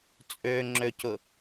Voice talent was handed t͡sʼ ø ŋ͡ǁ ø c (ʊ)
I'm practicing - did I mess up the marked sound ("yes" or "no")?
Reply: no